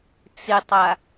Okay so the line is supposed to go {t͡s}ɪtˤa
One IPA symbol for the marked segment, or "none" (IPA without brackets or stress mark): t͡s